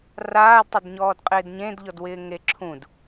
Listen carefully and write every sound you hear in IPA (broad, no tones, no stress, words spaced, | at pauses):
raːdtˤɪdɲɔːd qʼɪːdɲẽdʎɔdwɪː ŋeǁʰũd